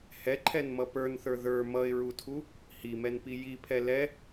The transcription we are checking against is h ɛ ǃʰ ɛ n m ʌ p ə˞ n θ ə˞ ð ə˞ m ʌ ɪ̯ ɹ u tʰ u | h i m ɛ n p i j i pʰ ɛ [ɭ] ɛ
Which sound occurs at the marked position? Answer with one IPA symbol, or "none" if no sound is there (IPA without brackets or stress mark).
l